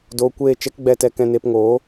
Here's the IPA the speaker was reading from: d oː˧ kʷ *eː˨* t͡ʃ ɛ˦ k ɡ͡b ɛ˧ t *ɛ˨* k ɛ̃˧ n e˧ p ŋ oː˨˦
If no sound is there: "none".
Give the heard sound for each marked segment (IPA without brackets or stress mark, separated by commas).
eː˦˨, ɛ˧